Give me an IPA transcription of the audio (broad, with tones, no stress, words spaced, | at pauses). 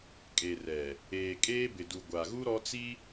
kʼe˨rɛ˨ | eː˨kʼeː˦bɪ˨du˨ ɡʷa˨ɣu˦ ɾɔ˦t͡si˦